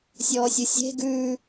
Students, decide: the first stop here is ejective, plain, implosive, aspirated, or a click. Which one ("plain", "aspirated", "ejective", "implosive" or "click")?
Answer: plain